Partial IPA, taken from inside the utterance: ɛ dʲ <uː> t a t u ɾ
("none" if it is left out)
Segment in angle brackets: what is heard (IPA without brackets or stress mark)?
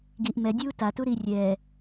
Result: uː